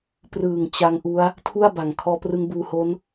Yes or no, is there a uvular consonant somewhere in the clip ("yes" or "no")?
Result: no